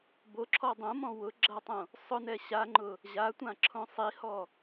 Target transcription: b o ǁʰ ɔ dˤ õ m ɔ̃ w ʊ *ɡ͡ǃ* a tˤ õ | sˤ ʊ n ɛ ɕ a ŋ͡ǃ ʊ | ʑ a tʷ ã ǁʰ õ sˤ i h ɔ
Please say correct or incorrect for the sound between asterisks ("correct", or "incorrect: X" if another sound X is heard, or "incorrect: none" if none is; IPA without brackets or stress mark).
incorrect: ɡ͡ǁ